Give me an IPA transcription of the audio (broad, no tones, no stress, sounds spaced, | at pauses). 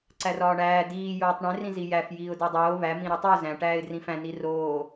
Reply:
ǀ æ r ɒː ɳ æː d iː j oː tˤ ɳ ẽ r ĩ z i j æ f j iː ʊ̯ d e dˤ oː β æ m ĩ ɾ u tˤ i ʊ̯ z æ̃ ʈ æː ɪ̯ d r ĩ f æ̃ n i r oː